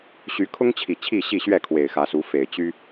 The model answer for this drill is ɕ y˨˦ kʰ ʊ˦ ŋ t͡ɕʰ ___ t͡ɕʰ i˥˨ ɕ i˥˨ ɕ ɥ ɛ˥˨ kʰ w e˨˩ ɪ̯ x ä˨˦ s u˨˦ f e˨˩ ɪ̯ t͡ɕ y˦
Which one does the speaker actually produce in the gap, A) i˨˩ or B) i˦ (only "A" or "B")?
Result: A